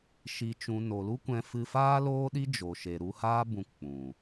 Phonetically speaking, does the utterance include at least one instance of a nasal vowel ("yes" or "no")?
yes